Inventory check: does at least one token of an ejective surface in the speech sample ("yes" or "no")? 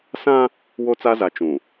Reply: no